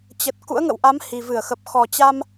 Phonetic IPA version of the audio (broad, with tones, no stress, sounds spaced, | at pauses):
t͡ɕ ə˨˩ t̚ k ṵ˧˥ ə̯ ŋ ə̰˧˨ w ʔ a˨˦ m h i˨˩ v ɨ˧˩ ə̯ x ə˨˩ p̚ x ɔ˨˩ t͡ɕ a˧ m